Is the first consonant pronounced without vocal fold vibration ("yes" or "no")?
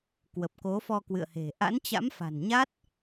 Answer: yes